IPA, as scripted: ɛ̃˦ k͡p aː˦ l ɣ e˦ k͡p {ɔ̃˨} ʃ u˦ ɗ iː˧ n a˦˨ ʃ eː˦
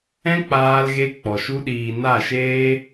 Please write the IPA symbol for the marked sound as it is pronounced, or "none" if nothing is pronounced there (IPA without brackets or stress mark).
ɔ˨